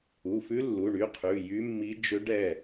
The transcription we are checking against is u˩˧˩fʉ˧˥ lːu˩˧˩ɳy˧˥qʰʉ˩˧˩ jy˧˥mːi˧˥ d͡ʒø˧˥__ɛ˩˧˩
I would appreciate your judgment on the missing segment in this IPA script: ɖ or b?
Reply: ɖ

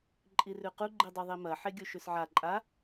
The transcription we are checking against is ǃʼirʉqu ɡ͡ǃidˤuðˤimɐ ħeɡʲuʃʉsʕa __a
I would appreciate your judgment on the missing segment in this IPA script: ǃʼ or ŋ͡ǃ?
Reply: ǃʼ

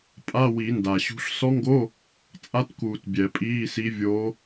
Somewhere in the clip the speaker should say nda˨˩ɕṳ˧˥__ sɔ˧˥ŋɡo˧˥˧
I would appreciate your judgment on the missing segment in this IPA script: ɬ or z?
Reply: ɬ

